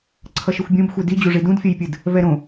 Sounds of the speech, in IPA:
ǀʰ ʌ ʃ ɯ xʷ bʲ õ b xʷ e d i d͡ʑ u ʐ i d ũ d fʲ ʌ j pʲ ɯ d | v ɛ ɾ õ

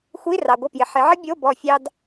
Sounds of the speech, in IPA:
xʷ i˧˥˧ r ɑ˨ ɡʷ ə˦˨ p j ɪ˨ ħ ɪ˨˦ ʕ ə˥ bʲ o˧˥˧ b ɔ˦˨ fʲ ɑ˥ d

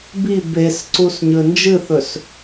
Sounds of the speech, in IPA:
b i b e s ǀ u s ɲ ɵ n d͡ʒ ɨ θ ɵ s

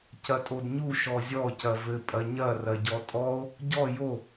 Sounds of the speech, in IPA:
c ɐ tʼ o d ɲ u ʃ ɔ zʲ ɔ c ɐ v ɘ pʼ ɐ ɲ ɐ r ɐ ɟ ɔ tʼ ɔ o̯ | ɟ ɔ j o

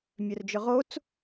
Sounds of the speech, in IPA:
mʲ œ r d͡ʒ ʏ ʁ o t͡s

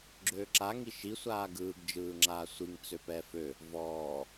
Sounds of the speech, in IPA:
ɡ͡ǁ øː ǁ a ŋ i ʃ i sʷ aː ɡ ɯː ɡ d͡ʒ ɯː ŋ͡ǁ aː sʷ i ŋ t͡s ø p ɛː f ø | v ɔː

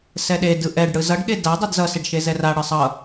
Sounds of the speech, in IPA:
s ɛ ɗ e d ɯ ʔ ɛ ɖ ɽ ɯ z ʌ ɖ ɠ e d a dˤ ɛ d z ʌ s e ɖ ʃ e z ɛ r a ɽ ɯ sˤ ʌ

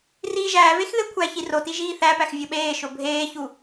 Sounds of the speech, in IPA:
r iː ʒ æː v e x ð e kʷʰ æ ç i r o t i ʒ iː θ æ p æ x vʲ o ɓ eː ʃ o bʱ eː ç u

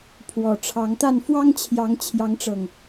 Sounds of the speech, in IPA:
pʰ w ɔ˨˩ ʈ͡ʂʰ ɑ˨˦ ŋ t̪ a˥˨ n f w ɑ˦ ŋ t͡ɕʰ j ɑ˨˦ ŋ t͡ɕʰ j ɑ˨˦ ŋ ʈ͡ʂ ɤ˨˩ ŋ

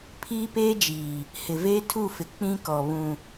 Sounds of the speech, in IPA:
pʰ iː˦ p eː˦ d͡ʒ iː˨ | h ɪ˨ v eː˦ tʰ u˦˨ f ɪ˨ k͡p ĩ˦ k ɔ˨ β ũ˨

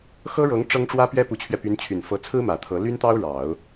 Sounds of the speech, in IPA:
x ɤ˥ ɻ ɤ˧˥ ŋ ʈ͡ʂ ɤ˥ ŋ ʈ͡ʂ w ä˥ p ɥ ɛ˥ p u˧˥ t͡ɕʰ ɥ ɛ˧ p y˧˥ n t͡ɕʰ y˨˩ n f ɤ˧˥ t͡sʰ ɹ̩˥ m ä˨˩ t̪ʰ ɤ˧˥ l y˥ n t̪ ɑ˥ ʊ̯ ɻ ɑ˨˩˦ ʊ̯

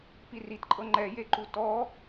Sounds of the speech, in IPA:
p i r i t ǃʼ ɤ ŋ͡ǃ ɛ j e ǃ u t ɔ

